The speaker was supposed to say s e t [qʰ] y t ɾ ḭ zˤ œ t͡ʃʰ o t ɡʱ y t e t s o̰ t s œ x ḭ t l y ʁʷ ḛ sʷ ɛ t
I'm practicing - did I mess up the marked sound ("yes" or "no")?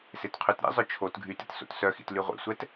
no